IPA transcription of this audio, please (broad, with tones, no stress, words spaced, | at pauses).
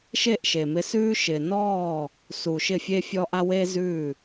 ʃe˦˨ʔ ʃe˨mɪ˧sʉː˦ ʃɪ˨nɔː˦˨ | su˨ ʃɪ˦˨fʲe˦fʲɔ˦ʔa˦ we˦zʉː˦˨